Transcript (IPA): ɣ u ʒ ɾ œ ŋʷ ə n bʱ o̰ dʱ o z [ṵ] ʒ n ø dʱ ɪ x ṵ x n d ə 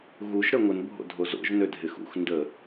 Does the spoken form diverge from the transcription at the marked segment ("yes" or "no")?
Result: yes